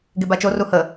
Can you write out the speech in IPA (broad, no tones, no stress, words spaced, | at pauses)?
ɡebat͡ʃo ruhə